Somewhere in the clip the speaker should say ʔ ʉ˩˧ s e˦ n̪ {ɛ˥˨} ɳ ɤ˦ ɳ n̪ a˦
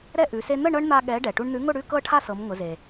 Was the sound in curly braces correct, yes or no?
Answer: no